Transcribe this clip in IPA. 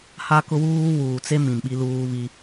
h a˦ k ʊ˦ w uː˦ w uː˨ t͡s e˦ m ĩ˨ m ɓ i˦ l uː˦ β i˦

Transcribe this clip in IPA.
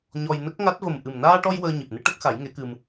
ɲ ɔ˧ j n ə˦˥ k̚ ŋ a˦˥ t̚ v ə˨˩ m ʔ ɨ˨˩ m n aː˧ ʈ ɔ˧ j w əː˧ ɲ i˨˩ p̚ n ɨ˧˥ ʈ ə˦˥ k̚ x a˨˩˦ j ŋ e˧˥ k ɨ˧ m

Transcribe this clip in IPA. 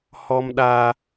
h ɔ˦ m ɗ a˦

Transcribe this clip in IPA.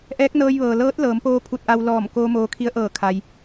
ʔ ɛː˧˥ k̚ n ɤː˧ j ʋ ɤː˩ l ɤː˧˥ t̚ l ɤː˩˧ m p oː˧ pʰ u˧ t̚ ʔ a˧ w l ɔː˧˩ m k oː˧ m oː˧ kʰ i˧˥ ə̯ ʔ ɤː˧˩ kʰ a˩ j

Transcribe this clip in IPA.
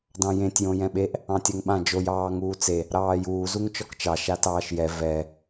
d ɑ̃ j ẽ tʲ j õ j ɛ̃ ɓ e ʔ | ɑ̃ tʲ ɛ ŋ ɓ ã d͡ʒ o j ɑː ŋ uː t͡s e | ɾ ɑː j uː z u ŋ t͡ʃ ɔ k t͡ʃ ɑ ʃ a t ɑː ʃ j ɛ v ɛ

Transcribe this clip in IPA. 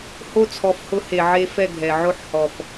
h o˦˨ t͡sʰ ɔ˨˦ f h ʊ˧ h e˨ ʕ e˧ f ɛ˦˨ ɡʱ ɛ˨ ʕ o˦ ħ h ɔ˨ f

